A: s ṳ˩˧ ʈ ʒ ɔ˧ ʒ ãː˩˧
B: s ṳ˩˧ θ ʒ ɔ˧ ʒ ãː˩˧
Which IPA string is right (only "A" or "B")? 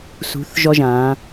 B